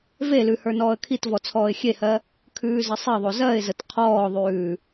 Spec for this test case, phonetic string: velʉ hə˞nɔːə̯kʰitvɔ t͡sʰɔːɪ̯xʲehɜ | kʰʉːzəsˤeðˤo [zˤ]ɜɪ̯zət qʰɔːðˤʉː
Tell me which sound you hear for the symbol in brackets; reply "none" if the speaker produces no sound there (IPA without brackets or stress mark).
z